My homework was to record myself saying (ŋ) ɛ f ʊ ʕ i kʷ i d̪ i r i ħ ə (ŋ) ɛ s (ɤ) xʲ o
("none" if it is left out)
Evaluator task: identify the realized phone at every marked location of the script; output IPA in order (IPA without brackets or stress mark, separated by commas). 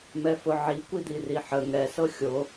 m, ŋ, ɤ